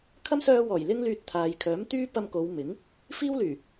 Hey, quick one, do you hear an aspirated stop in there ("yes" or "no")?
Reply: yes